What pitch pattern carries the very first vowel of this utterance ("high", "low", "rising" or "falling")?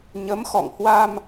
rising